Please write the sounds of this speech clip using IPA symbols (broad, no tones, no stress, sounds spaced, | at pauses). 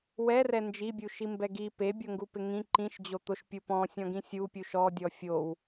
w ɛ r ɛ n d͡ʒ i bʲ u ʃ i m b ɛ ɡ i p e bʲ o ŋ ɡ u p ɪ ŋ ĩ ǃ ĩ ʃ d͡ʑ o t̪ o ʃ pʲ u p ɔ̃ sʲ ɔ̃ ɡ ĩ sʲ u pʲ u ʃ ɔ dʲ ɔ fʲ o w